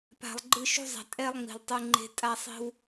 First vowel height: low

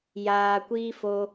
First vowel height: low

